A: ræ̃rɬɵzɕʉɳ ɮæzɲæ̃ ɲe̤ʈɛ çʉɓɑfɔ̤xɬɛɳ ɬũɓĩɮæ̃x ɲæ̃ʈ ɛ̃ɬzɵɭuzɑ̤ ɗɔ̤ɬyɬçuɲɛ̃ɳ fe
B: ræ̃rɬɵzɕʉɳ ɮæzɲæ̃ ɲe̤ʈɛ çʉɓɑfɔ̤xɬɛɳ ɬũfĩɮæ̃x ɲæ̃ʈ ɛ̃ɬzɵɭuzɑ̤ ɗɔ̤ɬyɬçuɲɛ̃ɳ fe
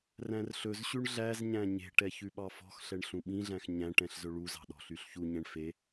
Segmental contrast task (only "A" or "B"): A